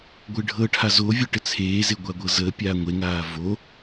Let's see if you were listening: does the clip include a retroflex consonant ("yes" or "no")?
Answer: yes